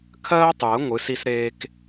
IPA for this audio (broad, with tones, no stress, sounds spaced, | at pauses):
kʰ ɜː˥ tˤ j ə˩˥ ŋʷ ɨ˩˥ s i˥ s ɾ eː˥ k